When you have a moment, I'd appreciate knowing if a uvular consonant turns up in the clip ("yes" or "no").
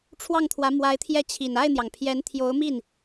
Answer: no